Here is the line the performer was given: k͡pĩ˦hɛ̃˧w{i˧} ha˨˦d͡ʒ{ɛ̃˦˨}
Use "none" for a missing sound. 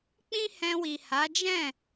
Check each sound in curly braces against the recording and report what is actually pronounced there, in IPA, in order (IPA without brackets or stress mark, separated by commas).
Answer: i˨, ɛ̃˦˨